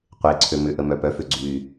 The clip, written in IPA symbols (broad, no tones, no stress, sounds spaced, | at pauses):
qʷ e ǀʰ ø m ʏ ʔ ə m œ p œ f ʏ ɡ͡ǀ y